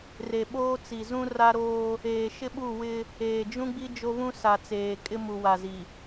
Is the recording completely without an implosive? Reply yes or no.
no